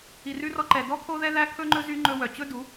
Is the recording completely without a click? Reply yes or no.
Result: no